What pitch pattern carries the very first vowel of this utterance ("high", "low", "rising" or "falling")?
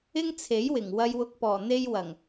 high